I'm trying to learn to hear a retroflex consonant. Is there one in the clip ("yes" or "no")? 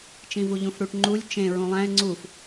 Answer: yes